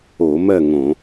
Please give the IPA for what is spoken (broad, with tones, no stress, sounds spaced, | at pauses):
o˧˩˧ m ɜ˥˨ ŋ õ˧˩˧